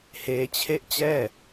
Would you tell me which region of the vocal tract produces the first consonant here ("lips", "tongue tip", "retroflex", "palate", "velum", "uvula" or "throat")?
throat